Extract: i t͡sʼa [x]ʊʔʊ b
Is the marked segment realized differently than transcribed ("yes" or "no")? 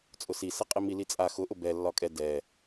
no